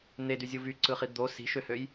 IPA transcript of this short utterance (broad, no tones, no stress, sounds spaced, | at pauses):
n̪ e d y zʲ u v y ǀ ɯ χ i d̪ o s i̤ ʃ ø h ø j